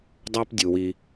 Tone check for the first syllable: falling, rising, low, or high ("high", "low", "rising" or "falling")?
high